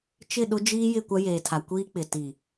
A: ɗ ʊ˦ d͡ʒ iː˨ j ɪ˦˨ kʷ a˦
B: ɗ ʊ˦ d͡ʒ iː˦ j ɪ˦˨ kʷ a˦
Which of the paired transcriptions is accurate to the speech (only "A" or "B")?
B